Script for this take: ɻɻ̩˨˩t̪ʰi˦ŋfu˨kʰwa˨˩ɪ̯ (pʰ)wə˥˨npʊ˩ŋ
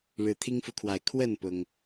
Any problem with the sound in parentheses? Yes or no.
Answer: yes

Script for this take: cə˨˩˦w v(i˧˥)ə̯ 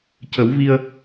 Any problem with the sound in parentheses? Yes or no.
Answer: yes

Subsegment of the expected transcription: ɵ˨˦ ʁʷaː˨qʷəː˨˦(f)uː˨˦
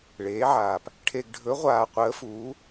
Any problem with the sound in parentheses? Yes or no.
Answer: no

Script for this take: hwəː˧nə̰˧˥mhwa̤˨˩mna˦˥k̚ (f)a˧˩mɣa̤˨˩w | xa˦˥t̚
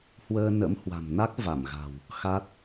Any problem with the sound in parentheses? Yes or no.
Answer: yes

